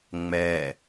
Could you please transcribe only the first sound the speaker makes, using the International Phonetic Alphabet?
ŋ͡m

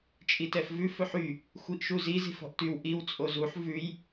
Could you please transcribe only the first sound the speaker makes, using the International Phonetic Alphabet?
t͡ʃʼ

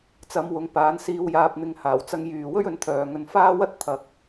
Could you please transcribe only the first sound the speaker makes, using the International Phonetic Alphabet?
t͡s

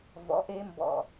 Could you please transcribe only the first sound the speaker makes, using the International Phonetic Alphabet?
v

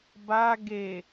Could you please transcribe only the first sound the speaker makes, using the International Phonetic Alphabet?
b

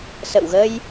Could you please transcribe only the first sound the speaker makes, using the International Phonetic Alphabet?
s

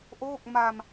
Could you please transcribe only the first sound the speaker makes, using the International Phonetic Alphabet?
ʔ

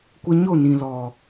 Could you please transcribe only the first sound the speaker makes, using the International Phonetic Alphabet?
kʷ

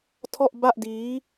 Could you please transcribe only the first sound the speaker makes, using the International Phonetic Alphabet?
tʰ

